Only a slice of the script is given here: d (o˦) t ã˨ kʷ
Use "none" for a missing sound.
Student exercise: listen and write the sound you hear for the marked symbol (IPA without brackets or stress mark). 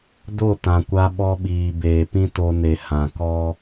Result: o˦˨